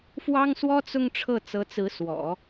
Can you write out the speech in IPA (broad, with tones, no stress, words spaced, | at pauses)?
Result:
fwɑ˥ŋswɔ˥t͡sʊ˥˧ŋ ʈ͡ʂʰɤ˥˩t͡sɤ˧˥t͡sɹ̩˧˥swɔ̰˨˩˦